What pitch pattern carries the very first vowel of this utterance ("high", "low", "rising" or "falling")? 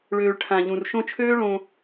low